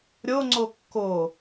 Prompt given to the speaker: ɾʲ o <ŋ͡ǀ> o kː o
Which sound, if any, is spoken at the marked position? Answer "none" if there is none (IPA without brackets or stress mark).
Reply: ŋ͡ǀ